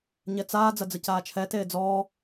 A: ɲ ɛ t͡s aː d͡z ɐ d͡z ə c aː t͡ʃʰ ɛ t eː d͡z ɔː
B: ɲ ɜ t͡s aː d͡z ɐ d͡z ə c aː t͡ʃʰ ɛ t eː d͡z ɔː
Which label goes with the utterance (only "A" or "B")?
A